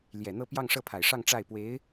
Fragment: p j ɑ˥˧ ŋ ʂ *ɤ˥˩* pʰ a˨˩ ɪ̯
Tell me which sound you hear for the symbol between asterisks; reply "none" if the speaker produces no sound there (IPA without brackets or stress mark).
ɤ˥˩